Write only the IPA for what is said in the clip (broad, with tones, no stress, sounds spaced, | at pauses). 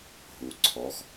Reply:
ɦ u˩ ǀʰ ɔ˩˧ x